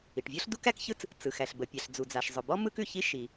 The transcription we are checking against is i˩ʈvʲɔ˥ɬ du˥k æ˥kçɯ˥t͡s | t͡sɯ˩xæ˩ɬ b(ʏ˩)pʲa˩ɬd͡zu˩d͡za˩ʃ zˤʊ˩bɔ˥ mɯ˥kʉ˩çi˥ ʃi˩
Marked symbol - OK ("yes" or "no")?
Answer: no